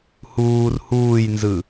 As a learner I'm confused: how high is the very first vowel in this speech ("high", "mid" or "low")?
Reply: high